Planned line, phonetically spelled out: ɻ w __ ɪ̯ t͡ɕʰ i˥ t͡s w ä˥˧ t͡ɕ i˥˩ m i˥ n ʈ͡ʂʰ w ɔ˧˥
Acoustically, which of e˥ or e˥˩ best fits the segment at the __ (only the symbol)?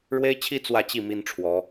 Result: e˥